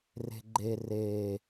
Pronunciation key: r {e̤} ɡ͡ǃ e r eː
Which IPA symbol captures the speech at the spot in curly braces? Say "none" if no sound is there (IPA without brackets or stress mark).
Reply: e̤